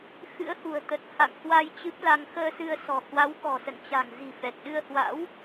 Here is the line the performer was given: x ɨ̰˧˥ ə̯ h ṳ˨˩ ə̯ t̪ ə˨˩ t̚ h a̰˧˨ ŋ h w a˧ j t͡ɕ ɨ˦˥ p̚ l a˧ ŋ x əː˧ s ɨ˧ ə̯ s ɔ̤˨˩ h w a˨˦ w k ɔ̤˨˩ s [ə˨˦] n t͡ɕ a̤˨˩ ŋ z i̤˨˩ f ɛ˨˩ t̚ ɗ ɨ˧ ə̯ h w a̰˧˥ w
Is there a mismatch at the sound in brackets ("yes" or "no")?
yes